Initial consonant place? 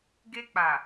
velar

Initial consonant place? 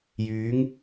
palatal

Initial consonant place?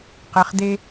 uvular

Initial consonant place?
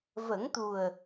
labial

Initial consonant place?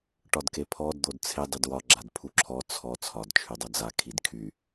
retroflex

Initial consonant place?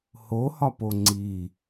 glottal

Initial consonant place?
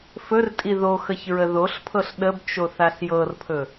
labial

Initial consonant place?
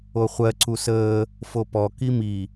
uvular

